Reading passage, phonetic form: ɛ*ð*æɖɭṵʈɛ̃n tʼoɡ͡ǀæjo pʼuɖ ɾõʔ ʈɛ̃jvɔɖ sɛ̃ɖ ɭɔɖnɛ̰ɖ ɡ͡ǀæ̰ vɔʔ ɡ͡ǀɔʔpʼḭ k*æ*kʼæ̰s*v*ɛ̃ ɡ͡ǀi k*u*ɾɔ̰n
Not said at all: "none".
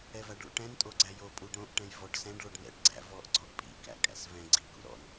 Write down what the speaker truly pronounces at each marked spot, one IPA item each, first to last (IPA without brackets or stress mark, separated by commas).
v, æ̰, v, ṵ